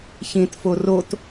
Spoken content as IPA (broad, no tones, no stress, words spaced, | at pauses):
çĩtfo rot